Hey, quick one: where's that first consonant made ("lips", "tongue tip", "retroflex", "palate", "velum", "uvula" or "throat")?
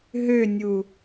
throat